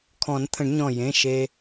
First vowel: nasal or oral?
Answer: nasal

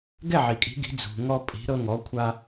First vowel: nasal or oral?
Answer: oral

